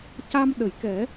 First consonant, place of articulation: palatal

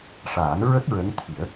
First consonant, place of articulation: retroflex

